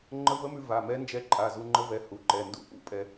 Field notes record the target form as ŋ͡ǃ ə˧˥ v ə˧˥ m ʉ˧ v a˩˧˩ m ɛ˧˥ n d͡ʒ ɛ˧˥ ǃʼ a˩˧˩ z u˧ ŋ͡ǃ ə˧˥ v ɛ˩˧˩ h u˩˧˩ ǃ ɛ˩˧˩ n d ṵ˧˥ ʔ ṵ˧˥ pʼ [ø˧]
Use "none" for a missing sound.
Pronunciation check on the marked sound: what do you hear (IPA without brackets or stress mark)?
ɛ˧